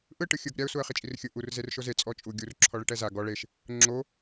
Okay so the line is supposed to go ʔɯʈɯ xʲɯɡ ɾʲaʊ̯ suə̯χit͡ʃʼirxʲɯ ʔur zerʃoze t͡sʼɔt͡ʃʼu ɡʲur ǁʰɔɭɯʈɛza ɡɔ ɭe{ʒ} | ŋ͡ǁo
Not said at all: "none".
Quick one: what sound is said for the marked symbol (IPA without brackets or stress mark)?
ʃ